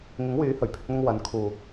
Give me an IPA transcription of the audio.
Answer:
ŋ ɪ˨˥ ŋ w yː˨˥ h ɵ˨˩ ɥ pʰ ɪ˧ k̚ n̪ ʊ˧ ŋ w ɐ˨˧ n kʰ uː˨

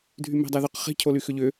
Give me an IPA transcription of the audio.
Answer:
dʱ y m ɛ̤ dˤ ɛ ð ʏ q χ i̤ cʰ o l y x ʏ ʎ ʏ

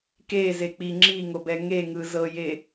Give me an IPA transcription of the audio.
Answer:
k e z e k͡p i ŋ͡ǁ i ŋ o b ɛ ŋ e ŋ ɯ z ɤ j e

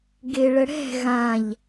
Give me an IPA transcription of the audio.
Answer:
ɡ e ɭ ə ɽ ɛ̤ ɣ ã ʎ

